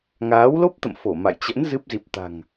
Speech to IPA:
ŋaː˨˦wlo˦˥p̚t̪ə̰˧˨m fo˧˩ ma̰˧˨jt͡ɕə̰˧˥n zɨ˦˥p̚ zi˨˩p̚ t̪a̤˨˩ŋ

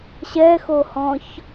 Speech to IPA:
ɕɛxohɔ̃ç

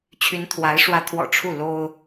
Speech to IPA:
t͡ɕʰy˧˥nt̪ʰwa˧˥ɪ̯ ʂwä˧˥t̪ʰwɔ̰˨˩ ʈ͡ʂʰu˥˩ lo˥ʊ̯

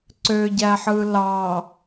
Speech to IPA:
ǀøɟæħɯ lɑ

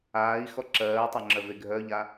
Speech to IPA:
aːi̯xɔ ǁɜːtˤaŋ͡ǁœve ɡʱœʎa

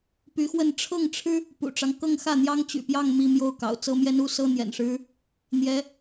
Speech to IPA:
py˧˥xwə˥˧n ʈ͡ʂʰɤ˥˩ŋʈ͡ʂʰɻ̩˥ | pṵ˨˩ʈ͡ʂɑ˦ŋ kɤ˥˧ŋxä˥˩n̪jɑ˥ŋ t͡ɕy̰˨˩pjɑ˥˧ŋ mi˥˧mjo˥˩ʊ̯kɑ̰˨˩ʊ̯ t͡sɤ˥mjɛ˥n u˥sɤ˥n̪jɛ̰˨˩nʂɻ̩˥ | n̪jɛ˧˥

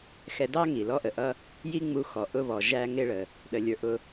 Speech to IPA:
xɛ˧dɑ˥ŋi˩ lɔ˧ʔə˩ʔʌ˧ | ji˥ŋ͡mu˧ xɔ˩ ʔʊ˧βɔ˩ ʒæ˧ŋɪ˧ɭə˩ | ɗə˩lʲə˞˩ ʔʊ˧

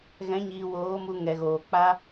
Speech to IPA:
ɣɛ̃˨˦ɲiː˨woː˨˦mu˧ ŋɛ˨ɣoː˨ k͡pa˦

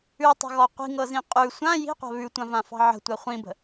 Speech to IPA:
ʉtˤə̤ɣɔ qʷi̤ŋɤzĩ qʼʉ sʷã ji̤qʷa̤ βʉtʷãvãfɑ̤ ʕə̤tʷa χʷĩbə̤

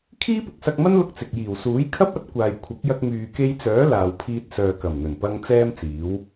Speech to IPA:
kʰiː˥pʊ˨˥k̚sɐ˧k̚mɐ˥n lʊ˥k̚t͡sɪ˨k̚ jiː˨˩wsuː˨˥jkʰɐ˥p̚ɐ˨˥t̚ kʷaː˨jkʷʰɐ˨˥k̚jɐ˧k̚ myː˨ke˧jt͡sœː˨˥ laː˨wpʰiː˧t̚sœː˨ kɐ˨˩mn̪ɵ˨˩npɐ˧ŋ t͡sɛː˥mt͡siː˨˥w

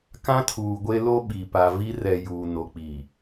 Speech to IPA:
kã˦tʰuː˨ɡʷe˦lo˦ ɓi˨ pa˨vi˦ rɛ˨ juː˨ no˨k͡pi˨

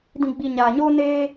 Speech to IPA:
dĩ˨ɡ͡bi˨ ɲaː˨ɲoː˦ neː˦

